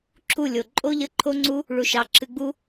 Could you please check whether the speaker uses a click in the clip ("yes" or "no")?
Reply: yes